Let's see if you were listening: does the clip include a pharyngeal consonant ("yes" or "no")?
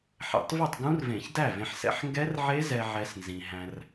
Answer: yes